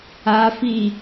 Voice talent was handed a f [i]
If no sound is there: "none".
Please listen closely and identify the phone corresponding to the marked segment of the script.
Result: i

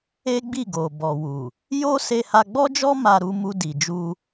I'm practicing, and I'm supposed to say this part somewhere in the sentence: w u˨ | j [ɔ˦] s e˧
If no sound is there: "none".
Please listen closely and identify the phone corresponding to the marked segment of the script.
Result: o˦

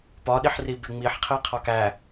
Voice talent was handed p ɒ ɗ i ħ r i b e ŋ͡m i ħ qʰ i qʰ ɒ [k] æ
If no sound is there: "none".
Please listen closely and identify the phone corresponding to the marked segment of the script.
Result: k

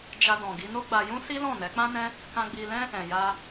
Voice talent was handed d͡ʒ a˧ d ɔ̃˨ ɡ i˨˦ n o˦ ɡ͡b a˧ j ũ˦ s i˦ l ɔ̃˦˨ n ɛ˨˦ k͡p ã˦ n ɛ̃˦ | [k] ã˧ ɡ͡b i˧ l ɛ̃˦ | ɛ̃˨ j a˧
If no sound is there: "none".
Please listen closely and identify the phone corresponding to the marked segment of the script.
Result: k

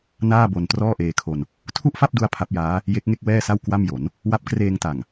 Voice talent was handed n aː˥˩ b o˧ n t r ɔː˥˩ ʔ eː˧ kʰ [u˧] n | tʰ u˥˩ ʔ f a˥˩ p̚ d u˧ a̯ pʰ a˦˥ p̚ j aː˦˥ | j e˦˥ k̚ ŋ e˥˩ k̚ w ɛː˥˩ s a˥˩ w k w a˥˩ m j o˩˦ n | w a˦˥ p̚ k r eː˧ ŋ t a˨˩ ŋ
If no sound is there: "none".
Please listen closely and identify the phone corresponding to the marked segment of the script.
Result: o˧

